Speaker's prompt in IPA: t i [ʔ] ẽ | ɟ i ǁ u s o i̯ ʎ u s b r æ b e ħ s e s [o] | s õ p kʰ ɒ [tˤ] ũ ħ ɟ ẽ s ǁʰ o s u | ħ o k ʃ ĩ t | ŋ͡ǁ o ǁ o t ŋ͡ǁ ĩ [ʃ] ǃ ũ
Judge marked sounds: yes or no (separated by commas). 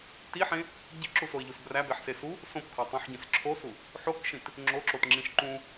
no, no, yes, yes